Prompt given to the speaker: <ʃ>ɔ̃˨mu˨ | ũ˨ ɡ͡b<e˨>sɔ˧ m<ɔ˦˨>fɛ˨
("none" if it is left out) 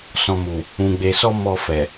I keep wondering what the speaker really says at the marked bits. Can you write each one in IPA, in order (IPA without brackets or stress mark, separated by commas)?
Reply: s, e˨, ɔ˧